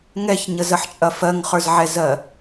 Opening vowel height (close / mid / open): mid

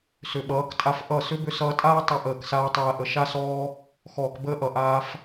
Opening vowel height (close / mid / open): close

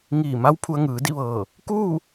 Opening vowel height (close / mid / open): close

